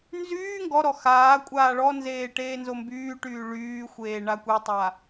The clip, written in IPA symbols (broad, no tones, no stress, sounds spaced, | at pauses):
n z yː ŋ ɡ ɔ ɾ ɔ x aː kʷʼ aː ɭ ɔ n z eː ʈ eː n z o m b yː ʈ yː ɭ yː xʷ eː ɳ a kʷ e tˤ a